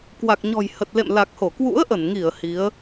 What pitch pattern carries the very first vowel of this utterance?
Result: low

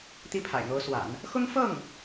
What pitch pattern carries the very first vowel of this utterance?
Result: high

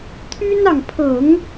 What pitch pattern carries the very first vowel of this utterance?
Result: high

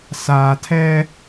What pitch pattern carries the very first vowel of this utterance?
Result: low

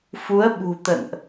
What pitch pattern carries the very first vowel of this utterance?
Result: rising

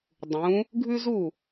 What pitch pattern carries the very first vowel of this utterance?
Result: rising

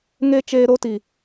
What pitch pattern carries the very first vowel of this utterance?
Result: high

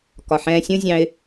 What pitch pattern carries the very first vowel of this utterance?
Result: low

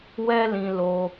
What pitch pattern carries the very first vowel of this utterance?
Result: high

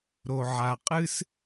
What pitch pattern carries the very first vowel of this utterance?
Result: low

